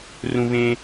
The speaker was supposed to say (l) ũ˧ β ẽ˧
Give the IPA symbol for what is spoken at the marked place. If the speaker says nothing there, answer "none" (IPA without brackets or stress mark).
r